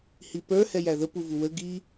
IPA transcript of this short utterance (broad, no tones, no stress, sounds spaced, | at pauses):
h i p ə˞ h ɛ j æ ð ə p u v u w ə ɡ i